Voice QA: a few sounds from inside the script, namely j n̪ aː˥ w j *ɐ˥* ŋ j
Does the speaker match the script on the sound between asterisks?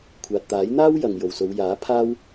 no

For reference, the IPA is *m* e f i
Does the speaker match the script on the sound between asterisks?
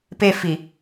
no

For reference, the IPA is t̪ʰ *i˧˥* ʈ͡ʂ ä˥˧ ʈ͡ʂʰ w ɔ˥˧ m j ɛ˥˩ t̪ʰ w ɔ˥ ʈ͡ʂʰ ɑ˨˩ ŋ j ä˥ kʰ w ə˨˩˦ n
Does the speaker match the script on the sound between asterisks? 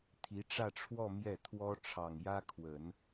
yes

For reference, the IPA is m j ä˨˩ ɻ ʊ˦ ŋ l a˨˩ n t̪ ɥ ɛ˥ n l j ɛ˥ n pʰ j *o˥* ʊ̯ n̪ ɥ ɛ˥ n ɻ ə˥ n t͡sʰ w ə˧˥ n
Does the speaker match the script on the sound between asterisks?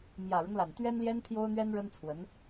yes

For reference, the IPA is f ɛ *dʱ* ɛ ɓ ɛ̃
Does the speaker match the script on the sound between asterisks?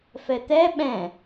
no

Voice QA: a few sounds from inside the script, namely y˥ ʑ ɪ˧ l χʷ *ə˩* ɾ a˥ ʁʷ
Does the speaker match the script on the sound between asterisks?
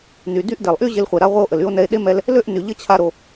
no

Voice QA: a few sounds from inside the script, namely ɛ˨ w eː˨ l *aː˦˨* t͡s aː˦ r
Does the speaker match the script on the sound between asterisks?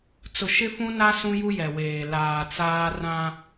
no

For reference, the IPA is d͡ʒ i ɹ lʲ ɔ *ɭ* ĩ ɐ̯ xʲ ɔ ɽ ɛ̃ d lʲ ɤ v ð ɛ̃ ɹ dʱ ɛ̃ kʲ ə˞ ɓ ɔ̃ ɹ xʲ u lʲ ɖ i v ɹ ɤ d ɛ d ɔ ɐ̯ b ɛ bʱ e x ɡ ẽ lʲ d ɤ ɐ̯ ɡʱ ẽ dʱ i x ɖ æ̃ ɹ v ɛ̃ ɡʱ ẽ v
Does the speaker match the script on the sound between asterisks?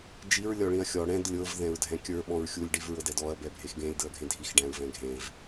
yes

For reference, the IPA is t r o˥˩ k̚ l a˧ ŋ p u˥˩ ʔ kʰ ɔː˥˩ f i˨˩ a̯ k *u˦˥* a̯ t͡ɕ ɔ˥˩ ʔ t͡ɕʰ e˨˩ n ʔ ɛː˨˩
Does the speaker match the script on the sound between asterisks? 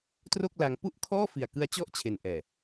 no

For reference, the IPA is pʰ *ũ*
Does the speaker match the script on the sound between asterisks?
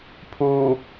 no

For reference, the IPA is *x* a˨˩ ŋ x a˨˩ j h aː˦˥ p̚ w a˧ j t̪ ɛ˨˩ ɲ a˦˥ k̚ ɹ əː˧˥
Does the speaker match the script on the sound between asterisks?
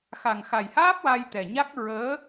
yes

